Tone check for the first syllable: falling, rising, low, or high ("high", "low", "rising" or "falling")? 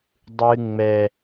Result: high